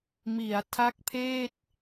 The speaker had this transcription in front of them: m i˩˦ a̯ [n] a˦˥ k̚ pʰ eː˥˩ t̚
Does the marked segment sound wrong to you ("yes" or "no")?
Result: yes